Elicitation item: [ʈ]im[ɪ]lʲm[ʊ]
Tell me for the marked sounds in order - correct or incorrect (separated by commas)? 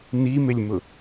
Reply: incorrect, correct, correct